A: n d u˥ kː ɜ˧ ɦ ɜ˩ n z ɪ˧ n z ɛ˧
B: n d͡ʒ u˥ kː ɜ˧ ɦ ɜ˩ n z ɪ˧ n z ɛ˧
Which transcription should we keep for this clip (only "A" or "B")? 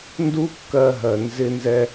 A